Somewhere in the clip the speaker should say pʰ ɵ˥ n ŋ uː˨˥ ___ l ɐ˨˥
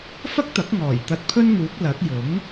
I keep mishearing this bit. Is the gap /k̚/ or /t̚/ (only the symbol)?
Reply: k̚